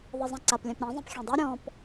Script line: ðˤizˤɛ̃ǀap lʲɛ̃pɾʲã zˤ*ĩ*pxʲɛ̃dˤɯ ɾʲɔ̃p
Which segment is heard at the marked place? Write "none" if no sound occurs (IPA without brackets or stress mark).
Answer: ĩ